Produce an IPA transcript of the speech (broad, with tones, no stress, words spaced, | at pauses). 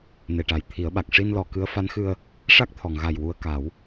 ne˨˩ʈa˨˩j t̪ʰi˨˩˦ə̯ɓa˨˩k̚ ʂi˧nlɔ˨˩˨ kɨ˧˥ə̯fa˧˥nxɨ˧ə̯ | ʂa˦˥k̚t̪ʰɔ˨˩˨ŋɣa˨˩j wu˧ə̯ka˨˩˦w